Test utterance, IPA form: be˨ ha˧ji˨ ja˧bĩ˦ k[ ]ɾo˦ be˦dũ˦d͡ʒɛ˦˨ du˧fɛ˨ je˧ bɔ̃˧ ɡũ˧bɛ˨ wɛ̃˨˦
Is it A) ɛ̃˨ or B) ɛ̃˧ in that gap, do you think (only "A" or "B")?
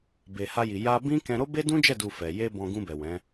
B